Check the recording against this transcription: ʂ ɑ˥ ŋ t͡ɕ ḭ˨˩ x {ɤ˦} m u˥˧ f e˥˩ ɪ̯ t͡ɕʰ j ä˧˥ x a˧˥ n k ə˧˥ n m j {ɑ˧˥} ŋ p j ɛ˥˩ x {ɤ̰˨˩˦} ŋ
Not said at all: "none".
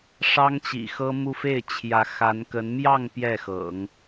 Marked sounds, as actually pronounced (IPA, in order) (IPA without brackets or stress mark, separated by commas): ɤ˥, ɑ˥˧, ɤ̰˨˩˦